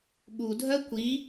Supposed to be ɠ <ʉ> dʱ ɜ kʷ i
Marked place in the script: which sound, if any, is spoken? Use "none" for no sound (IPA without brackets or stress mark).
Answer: u